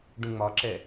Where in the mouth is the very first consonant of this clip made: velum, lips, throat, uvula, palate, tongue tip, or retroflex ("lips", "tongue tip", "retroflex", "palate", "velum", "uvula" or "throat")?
retroflex